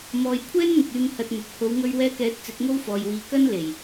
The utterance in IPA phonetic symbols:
m ɔː˨ j kʷʰ ɛː˥ n n̪ ɪ˨ k̚ yː˧ m h ɐ˧ t̚ n̪ ʊ˨ k̚ h o˨˧ w ŋ ɵ˧ ɥ w ɛː˧ k ɛː˨˥ t̚ t͡s ɪ˨˥ k̚ ŋ o˥ w f ɔː˨ j w iː˨ k ɐ˥ n l e˨˩ j

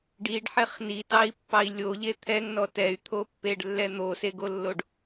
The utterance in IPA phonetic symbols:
ɖ i ɖ ħ ɛ χ n i t ɑ i̯ pː ɑ i̯ lʲ o ʎ e t̪ʰ ɛ ŋ n ɔ t ɛ y̯ t̪ʰ o pː e ɖ lː ɛ n̪ o s e ɡ o lː o ɖ

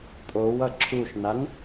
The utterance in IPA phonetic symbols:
pʼ o w ʌ ǁʰ u ʃ n a n

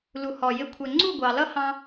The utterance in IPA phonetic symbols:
l u˩ h ɔ˩ j ɪ˩˥ kʷʰ ɛ˩ ŋ͡ǀ u˥˩ ɡʷ ɑ˩ l ʌ˥ h ɑ̃˧

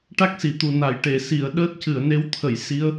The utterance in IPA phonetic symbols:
ʈ a˦˥ k̚ s i˨˩˨ t̪ u˨˩ n a˨˩˨ j ʈ e˨˩˨ s i˨˩˨ ə̯ ɗ əː˦˥ t̚ c ɨ˨˩˨ ə̯ n e˧˥ w t̪ʰ ə˨˩˨ j s i˧˥ ə̯

